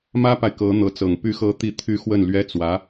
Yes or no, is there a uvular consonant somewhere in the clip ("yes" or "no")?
no